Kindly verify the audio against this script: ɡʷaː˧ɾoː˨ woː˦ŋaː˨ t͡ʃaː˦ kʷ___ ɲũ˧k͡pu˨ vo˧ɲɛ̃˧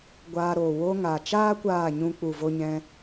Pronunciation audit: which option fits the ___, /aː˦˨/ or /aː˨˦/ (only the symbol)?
aː˦˨